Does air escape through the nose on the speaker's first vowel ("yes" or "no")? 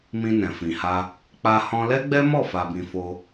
yes